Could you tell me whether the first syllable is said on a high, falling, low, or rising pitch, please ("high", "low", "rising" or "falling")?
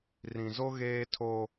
low